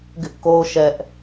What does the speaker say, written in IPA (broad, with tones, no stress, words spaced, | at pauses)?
ɡɪ˦ʔko˦ʊ̯ ʃɛ˦ʔ